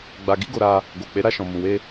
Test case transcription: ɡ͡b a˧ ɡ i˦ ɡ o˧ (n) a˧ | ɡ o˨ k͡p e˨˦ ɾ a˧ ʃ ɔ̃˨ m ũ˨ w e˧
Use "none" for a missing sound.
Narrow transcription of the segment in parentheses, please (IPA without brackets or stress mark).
ɾ